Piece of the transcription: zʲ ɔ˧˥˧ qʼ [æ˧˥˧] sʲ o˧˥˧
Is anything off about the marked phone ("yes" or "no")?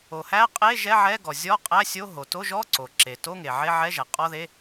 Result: no